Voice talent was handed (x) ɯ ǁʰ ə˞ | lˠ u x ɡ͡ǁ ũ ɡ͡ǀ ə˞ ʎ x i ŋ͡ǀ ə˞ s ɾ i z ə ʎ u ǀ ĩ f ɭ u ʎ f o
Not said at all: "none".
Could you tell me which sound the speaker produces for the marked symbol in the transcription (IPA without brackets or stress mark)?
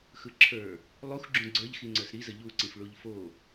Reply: x